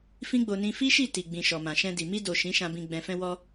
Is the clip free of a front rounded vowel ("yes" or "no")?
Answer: yes